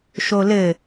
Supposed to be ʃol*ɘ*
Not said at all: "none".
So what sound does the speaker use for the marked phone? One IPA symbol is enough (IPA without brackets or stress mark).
ɘ